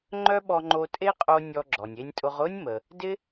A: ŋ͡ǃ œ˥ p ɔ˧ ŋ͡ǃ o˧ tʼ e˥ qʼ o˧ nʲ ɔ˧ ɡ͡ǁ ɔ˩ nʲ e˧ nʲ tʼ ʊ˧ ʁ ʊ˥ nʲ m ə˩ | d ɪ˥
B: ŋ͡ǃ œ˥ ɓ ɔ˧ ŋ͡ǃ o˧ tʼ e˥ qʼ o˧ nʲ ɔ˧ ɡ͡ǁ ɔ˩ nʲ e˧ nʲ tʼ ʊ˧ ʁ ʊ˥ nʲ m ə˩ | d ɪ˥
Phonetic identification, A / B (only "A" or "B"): B